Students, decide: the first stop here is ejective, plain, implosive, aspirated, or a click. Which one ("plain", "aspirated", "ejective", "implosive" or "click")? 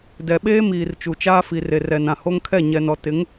plain